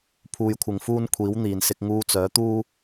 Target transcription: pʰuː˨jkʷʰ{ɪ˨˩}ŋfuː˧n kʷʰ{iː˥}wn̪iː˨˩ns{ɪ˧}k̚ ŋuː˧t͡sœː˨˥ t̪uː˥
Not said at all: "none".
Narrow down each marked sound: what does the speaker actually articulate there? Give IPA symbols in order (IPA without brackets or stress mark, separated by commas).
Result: ɪ˨˩, iː˨˥, ɪ˧